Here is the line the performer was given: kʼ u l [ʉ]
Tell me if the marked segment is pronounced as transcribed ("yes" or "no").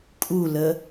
no